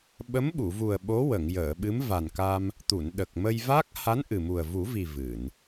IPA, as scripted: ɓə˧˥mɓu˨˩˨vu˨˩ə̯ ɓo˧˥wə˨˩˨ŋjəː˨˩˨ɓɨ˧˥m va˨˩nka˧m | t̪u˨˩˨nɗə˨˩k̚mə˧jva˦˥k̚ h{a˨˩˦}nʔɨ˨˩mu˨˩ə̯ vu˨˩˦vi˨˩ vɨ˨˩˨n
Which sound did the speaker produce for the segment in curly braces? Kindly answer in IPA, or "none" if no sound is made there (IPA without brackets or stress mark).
a˧˥